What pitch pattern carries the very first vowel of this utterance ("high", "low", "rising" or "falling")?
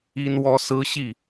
high